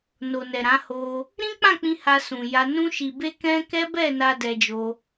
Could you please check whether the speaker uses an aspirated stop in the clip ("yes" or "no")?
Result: no